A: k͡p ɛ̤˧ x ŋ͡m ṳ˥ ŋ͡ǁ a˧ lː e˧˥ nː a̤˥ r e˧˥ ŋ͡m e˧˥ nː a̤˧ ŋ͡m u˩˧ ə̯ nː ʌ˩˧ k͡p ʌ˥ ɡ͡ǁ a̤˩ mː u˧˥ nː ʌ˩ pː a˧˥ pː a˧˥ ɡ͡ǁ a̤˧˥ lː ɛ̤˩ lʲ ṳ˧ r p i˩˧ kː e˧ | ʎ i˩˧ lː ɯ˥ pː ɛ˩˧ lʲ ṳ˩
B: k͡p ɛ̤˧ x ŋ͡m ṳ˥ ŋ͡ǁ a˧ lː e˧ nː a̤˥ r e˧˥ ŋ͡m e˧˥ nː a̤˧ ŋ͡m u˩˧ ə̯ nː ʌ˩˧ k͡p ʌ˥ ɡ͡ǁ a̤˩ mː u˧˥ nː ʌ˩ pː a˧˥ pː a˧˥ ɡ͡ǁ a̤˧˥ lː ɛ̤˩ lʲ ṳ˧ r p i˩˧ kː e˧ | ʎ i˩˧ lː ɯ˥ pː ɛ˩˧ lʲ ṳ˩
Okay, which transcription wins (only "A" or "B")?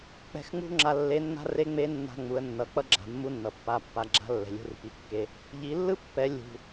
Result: A